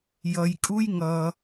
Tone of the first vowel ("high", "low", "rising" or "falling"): low